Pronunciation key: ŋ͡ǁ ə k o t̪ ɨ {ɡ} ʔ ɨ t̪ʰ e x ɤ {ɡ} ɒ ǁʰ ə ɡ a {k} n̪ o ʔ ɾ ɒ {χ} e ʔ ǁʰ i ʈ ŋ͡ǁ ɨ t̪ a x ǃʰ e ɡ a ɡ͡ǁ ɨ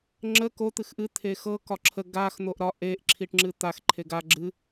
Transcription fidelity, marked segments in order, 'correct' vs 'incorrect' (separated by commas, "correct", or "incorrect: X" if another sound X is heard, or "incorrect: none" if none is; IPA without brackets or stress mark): incorrect: x, incorrect: k, incorrect: x, incorrect: ʔ